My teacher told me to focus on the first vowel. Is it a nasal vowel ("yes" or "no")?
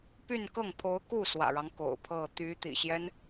no